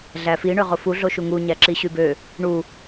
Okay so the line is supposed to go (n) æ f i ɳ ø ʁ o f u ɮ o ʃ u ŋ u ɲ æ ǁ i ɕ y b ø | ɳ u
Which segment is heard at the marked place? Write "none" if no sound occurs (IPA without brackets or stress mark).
ɮ